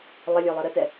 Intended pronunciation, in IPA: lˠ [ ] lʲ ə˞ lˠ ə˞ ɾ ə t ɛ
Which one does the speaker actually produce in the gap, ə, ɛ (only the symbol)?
ə